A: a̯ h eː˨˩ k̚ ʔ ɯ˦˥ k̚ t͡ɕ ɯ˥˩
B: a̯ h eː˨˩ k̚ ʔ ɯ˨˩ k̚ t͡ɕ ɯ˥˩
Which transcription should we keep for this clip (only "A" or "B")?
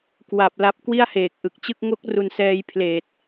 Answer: B